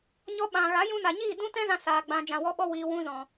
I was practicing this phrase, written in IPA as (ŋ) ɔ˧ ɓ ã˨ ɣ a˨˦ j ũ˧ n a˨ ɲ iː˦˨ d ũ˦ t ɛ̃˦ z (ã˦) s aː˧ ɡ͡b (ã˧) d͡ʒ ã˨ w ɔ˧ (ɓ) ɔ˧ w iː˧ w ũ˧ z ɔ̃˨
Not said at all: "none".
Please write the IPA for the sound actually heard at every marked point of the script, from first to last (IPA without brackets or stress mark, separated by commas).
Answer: ɲ, ã˦, ã˧, ɓ